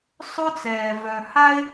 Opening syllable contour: high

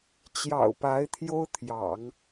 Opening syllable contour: low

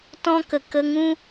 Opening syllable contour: high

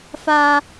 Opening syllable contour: high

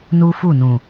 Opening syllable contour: high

